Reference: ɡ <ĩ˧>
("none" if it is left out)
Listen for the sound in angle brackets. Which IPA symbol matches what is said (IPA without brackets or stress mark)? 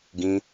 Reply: ĩ˧